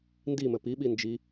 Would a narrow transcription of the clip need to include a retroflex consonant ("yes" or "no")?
no